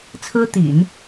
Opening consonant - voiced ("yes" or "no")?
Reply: no